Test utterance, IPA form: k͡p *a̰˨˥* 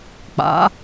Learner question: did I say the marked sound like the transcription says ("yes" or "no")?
yes